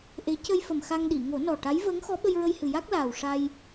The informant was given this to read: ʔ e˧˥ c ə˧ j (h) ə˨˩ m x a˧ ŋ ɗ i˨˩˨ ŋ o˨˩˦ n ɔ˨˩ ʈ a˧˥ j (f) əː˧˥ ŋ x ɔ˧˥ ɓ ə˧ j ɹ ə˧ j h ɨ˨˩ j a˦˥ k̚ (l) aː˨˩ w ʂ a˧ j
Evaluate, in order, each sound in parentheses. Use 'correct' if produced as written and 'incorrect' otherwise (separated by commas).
incorrect, incorrect, correct